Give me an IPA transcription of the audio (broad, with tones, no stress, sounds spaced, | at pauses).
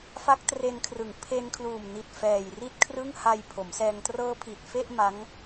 f a˦˥ k̚ t r e˧ n kʰ r ɯ˨˩ ŋ pʰ e˧ n kʰ l uː˨˩ m n i˨˩ t̚ f ɛː˨˩ j r i˥˩ t̚ kʰ r ɯ˥˩ ŋ h a˧ j pʰ o˩˦ m s ɛː˧ ŋ t r ɤː˦˥ pʰ i˨˩ t̚ f e˥˩ ʔ m a˦˥ ŋ